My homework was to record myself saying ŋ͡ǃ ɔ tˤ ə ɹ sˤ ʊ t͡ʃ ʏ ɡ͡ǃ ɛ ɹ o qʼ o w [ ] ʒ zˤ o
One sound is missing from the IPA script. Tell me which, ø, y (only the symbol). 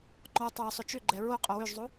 ø